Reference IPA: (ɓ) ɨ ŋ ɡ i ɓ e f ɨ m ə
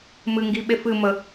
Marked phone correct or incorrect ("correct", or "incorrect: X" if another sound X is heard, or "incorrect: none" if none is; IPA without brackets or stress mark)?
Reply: incorrect: m